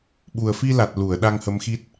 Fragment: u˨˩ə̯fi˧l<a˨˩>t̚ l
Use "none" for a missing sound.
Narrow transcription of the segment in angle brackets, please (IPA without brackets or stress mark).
a˨˩